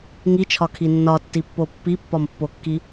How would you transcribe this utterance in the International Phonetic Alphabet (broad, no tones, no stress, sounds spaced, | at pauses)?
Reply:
ŋ i t͡ʃʰ ɒ kʰ i nː ɒ tː i pː o pː i pː ɒ m pː o kː i